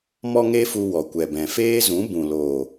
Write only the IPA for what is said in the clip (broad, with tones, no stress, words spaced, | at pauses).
mɔ˦ŋe˦fu˧ wɔ˨kʷɛ˨bɛ̃˨ feː˦zũ˨˦ bũ˨lo˨